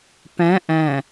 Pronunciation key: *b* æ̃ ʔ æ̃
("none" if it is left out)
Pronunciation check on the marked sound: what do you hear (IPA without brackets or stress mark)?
p